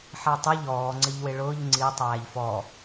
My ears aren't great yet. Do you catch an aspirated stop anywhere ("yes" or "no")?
no